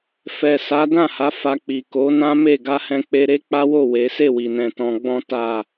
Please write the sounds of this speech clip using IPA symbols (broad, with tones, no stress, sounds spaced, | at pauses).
f ɛ˨ s a˨˦ d ã˦˨ h a˨˦ f a˧ k͡p i˨ k o˨˦ n ã˦ m e˦˨ ɡ a˧ h ɛ̃˧ k͡p e˧ ɾ e˦ k͡p a˦ w o˦˨ w e˨˦ s e˦˨ w i˨ n ɛ̃˨ t ɔ̃˧ ɡ͡b ɔ̃˦ t a˦˨